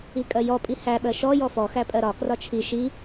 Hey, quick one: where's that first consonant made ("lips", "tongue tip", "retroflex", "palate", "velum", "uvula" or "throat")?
velum